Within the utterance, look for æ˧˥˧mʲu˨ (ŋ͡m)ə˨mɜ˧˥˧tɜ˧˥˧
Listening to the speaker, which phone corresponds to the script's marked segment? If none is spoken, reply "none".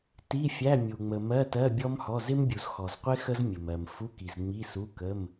ŋ͡m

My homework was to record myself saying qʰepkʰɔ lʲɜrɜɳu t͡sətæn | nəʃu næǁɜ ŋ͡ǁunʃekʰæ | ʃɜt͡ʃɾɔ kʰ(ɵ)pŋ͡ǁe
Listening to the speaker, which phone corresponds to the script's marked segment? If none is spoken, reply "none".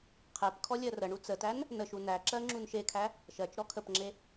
ə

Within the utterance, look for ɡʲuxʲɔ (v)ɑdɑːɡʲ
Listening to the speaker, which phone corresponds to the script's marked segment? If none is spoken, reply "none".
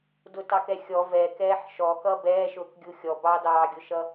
b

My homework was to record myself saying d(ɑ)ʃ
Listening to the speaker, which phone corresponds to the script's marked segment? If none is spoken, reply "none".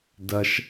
ɐ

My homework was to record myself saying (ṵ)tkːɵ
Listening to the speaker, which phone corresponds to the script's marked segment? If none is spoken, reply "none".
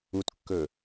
u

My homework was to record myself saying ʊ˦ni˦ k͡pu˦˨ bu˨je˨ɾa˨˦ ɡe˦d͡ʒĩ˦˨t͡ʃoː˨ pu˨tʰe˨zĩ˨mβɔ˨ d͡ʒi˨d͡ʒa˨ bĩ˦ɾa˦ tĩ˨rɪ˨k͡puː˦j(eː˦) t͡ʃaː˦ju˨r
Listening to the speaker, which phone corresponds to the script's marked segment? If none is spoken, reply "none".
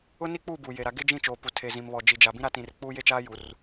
e˦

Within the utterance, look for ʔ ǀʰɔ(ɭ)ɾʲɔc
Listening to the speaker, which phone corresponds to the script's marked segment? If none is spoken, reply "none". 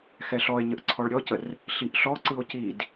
ɭ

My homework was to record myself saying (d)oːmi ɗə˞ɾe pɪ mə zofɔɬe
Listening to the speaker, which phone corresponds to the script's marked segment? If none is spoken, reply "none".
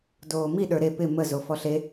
d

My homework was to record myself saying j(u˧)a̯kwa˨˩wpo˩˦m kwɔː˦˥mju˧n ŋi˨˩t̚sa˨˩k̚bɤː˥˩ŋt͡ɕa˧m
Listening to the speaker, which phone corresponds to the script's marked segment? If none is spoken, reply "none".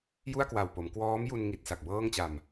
u˥˩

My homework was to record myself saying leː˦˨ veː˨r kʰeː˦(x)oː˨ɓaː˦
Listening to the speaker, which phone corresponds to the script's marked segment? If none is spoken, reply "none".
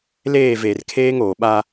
ŋ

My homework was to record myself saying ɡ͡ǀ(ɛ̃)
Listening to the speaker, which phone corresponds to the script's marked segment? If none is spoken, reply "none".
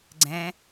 ɛ̃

